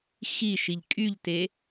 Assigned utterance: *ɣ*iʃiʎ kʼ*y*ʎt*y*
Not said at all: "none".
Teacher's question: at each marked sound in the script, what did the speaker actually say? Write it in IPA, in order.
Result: x, y, e

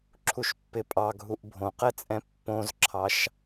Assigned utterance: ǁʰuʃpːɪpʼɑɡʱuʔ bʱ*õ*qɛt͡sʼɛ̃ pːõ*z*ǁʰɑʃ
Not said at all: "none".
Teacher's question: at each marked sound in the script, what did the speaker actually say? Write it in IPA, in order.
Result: õ, z

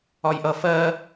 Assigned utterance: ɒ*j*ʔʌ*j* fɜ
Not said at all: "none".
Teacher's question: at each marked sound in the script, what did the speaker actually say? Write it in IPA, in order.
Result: j, none

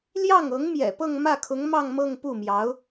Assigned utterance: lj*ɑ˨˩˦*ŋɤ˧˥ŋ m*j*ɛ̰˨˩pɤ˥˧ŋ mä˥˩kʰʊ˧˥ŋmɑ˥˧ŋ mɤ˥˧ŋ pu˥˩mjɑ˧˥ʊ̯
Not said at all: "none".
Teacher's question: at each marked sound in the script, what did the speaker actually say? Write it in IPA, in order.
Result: ɑ˥˩, j

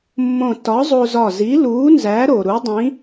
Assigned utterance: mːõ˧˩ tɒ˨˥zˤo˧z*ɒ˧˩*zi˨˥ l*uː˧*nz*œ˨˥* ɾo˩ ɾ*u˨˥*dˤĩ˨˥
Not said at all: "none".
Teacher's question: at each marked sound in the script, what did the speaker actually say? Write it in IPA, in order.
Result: ɒ˧˩, uː˨˥, æ˨˥, u˨˥

